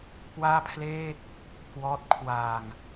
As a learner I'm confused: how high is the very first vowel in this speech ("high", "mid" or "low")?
low